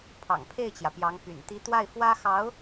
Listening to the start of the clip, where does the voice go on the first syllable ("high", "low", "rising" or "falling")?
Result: low